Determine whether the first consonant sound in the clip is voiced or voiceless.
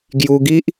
voiced